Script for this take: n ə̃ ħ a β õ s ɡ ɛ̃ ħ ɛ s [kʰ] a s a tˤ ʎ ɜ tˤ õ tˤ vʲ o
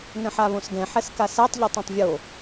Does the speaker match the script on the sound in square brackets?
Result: no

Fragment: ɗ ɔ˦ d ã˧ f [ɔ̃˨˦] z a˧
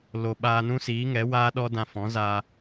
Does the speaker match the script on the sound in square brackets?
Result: yes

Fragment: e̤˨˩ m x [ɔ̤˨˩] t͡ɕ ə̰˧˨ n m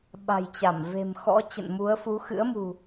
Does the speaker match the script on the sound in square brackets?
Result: no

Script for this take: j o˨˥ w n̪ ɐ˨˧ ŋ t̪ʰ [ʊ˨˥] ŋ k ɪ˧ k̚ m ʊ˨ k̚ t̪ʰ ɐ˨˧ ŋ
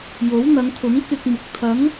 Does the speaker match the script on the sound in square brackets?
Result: yes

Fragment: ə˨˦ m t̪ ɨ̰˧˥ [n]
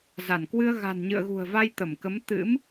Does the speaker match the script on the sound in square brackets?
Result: no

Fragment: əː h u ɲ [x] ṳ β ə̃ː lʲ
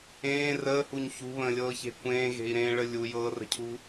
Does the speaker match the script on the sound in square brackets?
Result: no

